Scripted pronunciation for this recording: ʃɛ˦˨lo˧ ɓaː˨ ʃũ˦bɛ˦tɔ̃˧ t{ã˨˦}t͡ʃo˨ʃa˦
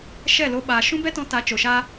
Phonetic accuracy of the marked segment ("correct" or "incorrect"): incorrect